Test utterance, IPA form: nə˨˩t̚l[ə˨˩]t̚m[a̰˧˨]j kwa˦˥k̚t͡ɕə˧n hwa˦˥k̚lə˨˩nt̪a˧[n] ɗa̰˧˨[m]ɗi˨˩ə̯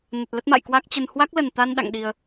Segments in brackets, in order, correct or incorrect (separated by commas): incorrect, correct, correct, incorrect